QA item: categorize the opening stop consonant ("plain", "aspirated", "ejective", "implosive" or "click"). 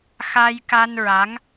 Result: plain